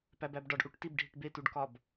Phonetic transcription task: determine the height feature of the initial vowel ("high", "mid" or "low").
low